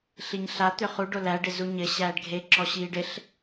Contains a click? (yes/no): yes